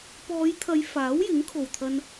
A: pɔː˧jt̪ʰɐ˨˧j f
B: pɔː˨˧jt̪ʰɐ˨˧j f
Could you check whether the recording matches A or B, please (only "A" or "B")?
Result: B